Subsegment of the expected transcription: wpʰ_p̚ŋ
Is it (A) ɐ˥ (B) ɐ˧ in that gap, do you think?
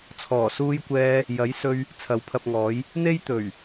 B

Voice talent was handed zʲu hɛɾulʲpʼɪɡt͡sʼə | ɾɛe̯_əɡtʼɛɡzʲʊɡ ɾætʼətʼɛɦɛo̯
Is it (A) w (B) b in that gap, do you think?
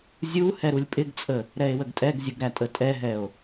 A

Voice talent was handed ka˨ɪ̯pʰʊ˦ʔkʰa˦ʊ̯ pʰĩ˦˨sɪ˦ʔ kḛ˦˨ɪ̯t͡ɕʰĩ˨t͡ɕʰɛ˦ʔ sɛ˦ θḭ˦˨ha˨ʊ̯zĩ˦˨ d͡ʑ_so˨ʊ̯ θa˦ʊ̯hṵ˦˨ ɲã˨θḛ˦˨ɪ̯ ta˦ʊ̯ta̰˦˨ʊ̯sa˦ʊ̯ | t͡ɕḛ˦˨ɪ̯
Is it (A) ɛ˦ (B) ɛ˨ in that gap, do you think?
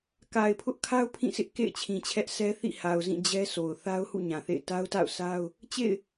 A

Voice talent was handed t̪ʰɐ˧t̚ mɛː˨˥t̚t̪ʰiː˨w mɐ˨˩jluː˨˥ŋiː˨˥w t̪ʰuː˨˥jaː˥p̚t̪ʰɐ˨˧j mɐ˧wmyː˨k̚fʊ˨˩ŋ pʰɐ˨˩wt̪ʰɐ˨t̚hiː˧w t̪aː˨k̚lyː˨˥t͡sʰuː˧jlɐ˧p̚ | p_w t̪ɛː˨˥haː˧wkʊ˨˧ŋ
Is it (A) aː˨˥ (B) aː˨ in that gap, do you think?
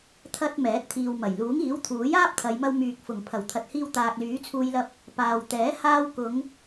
B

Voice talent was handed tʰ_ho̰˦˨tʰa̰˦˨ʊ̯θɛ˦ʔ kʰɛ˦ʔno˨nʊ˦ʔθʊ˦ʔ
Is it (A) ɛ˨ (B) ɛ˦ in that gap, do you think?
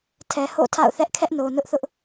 A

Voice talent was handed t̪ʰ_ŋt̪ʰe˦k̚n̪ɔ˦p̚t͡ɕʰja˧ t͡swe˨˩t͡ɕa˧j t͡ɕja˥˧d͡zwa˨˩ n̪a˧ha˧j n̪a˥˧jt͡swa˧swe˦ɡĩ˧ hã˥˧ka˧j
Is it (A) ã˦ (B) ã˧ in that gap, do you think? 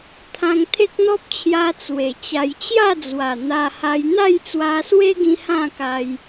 B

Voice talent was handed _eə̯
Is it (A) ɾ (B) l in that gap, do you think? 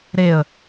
A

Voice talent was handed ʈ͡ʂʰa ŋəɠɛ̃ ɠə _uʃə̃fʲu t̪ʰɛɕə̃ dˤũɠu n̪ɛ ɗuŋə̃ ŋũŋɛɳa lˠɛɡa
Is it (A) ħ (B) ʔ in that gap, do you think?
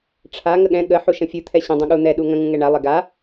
A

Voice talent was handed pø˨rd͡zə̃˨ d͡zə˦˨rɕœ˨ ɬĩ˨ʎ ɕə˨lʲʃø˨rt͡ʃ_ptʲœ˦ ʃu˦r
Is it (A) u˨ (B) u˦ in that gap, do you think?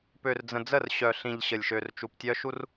A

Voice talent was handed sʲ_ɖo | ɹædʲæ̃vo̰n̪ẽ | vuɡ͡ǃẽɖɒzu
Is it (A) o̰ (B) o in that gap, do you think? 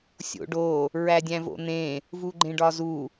A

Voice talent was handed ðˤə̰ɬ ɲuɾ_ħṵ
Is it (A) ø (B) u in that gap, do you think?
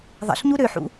A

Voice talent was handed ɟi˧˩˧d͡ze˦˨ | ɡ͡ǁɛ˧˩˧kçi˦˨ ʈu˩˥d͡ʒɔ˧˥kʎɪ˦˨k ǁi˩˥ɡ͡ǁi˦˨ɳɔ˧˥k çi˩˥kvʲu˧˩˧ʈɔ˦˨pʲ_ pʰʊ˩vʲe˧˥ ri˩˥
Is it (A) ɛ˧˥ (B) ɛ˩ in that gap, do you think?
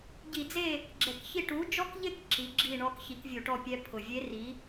A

